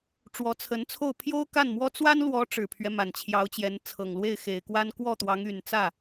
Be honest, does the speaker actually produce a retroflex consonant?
yes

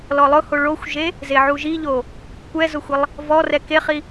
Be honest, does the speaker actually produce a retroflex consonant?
yes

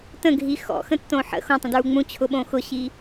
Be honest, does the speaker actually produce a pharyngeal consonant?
yes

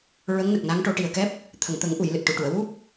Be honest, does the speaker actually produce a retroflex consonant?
yes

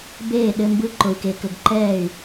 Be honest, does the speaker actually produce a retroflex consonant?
no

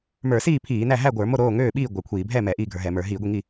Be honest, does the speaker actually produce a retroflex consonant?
no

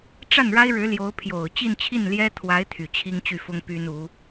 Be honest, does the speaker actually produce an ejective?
no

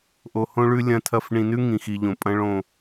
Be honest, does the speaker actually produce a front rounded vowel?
no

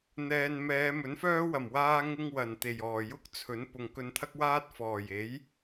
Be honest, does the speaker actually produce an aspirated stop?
yes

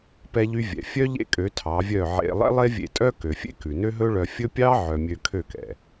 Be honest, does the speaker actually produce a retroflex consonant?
yes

